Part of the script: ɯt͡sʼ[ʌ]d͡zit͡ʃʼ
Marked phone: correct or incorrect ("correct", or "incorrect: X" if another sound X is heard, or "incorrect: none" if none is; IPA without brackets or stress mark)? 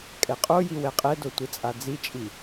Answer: incorrect: a